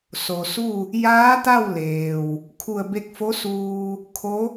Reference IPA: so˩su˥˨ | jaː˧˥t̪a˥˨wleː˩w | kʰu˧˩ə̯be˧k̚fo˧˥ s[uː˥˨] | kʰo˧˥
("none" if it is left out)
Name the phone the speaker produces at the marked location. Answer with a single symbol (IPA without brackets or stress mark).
uː˧